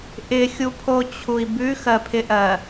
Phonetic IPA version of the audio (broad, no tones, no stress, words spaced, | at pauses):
ʔɪxʲupʰot͡ɕʰui̯ bʉxɜpʰɪʔɜ